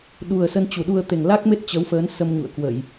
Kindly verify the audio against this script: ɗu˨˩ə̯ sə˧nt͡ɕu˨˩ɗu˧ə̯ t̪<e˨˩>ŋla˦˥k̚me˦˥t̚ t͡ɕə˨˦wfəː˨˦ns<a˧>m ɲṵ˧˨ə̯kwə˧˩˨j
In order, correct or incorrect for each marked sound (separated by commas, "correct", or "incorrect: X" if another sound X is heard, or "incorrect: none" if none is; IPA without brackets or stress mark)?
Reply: correct, incorrect: ə˧